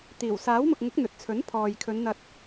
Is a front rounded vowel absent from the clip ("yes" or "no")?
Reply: yes